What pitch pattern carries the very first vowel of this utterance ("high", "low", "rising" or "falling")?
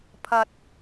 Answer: low